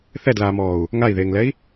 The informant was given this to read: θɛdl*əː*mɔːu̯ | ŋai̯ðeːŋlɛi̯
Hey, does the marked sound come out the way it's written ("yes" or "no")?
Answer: no